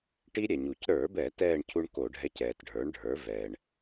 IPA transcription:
ʈ i˦˥ ɾʲ ɛ˩ ɲ u˩ c ɾ ə˞˧˩˧ b ɛ˧˩˧ t ɛː˥˨ ɳ cʰ u˦˥ ɳ k o˧˩˧ ɖʱ ɛ˧˥˧ c ɛː˩ t ɖʱ ə˞˩˥ ɳ ɖʱ ə˞˩˥ v ɛː˩ ɳ

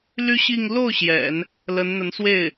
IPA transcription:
l y˥ ɕ i˥˧ ŋ l o˥˩ ʊ̯ ɕ j ɛ̰˨˩˦ n | l ə˧˥ n n̪ ə˧˥ n s w e˥˩ ɪ̯

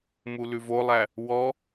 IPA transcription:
m u l ʉ v o lˠ æ | w ɔ

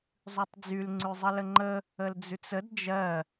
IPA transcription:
zˤ ʉ tˤ d͡z y l ŋ͡ǀ ʉ zˤ ə l ə ŋ͡ǃ ə | ə l d͡z ʉ t͡s ə d d͡ʒ ɜ

